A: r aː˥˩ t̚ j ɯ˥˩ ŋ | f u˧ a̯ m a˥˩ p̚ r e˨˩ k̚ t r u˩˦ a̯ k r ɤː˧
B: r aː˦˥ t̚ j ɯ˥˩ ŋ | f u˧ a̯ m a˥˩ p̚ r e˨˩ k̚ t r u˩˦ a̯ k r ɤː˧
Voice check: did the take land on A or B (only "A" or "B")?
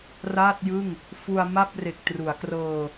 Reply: A